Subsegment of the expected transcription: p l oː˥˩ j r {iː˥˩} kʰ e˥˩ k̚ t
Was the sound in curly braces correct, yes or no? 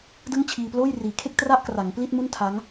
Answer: no